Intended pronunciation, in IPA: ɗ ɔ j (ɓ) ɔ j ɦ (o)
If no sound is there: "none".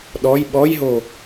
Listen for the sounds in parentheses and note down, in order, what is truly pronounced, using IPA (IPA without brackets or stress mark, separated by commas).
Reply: ɓ, o